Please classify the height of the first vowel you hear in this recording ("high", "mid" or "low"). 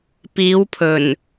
high